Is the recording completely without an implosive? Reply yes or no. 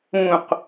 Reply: yes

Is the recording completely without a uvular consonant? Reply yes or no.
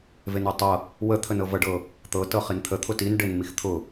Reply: no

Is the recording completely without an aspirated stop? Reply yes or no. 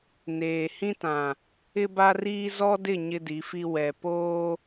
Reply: yes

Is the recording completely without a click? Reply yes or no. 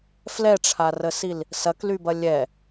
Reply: yes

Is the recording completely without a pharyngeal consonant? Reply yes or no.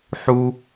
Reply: no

